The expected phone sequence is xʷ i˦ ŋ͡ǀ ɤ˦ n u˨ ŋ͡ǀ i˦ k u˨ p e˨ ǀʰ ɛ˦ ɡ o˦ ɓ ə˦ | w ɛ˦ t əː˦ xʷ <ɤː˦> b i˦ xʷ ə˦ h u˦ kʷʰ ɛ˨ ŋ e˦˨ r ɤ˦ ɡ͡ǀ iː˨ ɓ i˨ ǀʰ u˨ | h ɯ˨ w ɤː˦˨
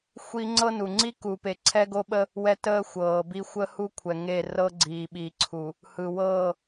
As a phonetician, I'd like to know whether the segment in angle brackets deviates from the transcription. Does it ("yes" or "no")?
yes